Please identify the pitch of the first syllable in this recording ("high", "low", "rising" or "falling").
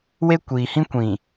high